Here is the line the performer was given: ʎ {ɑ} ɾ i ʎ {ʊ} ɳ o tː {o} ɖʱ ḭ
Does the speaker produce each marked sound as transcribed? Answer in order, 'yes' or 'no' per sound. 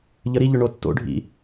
no, yes, no

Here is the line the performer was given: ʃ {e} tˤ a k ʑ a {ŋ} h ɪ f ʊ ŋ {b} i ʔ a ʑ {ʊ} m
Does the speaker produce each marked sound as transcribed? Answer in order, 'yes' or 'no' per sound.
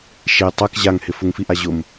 yes, yes, no, yes

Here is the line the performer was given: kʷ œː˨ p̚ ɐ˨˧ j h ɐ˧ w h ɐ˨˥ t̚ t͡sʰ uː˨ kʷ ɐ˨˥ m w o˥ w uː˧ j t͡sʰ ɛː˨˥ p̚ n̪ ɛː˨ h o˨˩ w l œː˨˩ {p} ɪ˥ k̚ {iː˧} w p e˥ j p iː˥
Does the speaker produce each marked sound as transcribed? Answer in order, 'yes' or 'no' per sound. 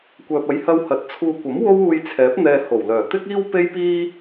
no, no

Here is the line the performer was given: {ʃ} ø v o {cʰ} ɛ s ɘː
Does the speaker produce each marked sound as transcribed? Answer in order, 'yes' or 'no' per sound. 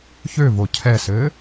no, yes

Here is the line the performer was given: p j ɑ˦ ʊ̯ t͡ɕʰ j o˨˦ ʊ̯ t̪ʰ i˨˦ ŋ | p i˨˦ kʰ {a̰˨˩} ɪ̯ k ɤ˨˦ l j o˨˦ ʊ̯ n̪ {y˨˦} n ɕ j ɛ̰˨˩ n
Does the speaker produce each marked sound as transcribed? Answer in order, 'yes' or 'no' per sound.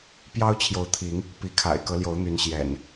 yes, yes

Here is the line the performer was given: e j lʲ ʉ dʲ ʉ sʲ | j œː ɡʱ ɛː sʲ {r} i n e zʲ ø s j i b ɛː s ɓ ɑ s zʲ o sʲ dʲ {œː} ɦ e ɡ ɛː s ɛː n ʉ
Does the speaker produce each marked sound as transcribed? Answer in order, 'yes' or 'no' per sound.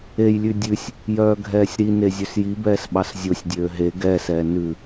no, no

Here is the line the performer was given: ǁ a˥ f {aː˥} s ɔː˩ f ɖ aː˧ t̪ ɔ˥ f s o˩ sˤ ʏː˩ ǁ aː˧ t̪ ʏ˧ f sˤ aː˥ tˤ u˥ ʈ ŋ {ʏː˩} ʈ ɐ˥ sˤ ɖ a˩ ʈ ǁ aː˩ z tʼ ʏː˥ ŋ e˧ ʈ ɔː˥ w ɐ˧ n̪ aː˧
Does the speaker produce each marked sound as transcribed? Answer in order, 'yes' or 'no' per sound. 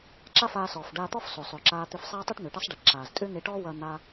no, yes

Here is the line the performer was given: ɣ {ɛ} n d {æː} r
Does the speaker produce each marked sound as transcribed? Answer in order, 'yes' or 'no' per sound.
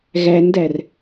no, no

